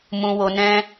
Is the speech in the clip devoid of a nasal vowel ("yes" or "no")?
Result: no